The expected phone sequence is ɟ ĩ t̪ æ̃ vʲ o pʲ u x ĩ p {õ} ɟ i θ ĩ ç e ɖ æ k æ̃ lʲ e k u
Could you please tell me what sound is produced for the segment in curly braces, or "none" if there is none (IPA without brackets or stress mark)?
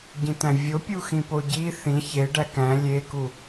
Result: o